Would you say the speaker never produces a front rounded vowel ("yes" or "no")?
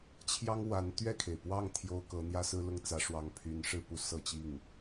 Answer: no